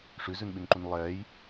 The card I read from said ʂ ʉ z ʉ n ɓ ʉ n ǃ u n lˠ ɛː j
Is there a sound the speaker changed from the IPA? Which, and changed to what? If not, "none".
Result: none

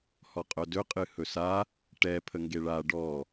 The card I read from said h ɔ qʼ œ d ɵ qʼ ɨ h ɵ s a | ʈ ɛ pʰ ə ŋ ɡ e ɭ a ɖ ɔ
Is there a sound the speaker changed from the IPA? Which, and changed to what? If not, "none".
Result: none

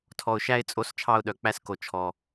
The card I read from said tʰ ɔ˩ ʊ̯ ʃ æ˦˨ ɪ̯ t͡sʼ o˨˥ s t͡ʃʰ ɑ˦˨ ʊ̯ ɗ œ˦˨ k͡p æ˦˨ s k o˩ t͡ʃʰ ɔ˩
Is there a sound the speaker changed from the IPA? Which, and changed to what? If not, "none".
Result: œ˦˨ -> œ˩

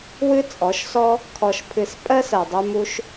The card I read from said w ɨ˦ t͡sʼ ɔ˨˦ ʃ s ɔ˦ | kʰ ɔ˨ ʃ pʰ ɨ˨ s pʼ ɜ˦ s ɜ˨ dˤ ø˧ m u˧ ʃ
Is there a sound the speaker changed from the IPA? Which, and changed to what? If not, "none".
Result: none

